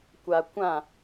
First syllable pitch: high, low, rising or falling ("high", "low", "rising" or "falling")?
low